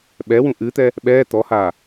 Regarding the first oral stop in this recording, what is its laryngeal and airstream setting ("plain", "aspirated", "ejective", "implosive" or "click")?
implosive